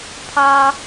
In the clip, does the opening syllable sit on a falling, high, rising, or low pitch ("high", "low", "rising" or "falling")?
high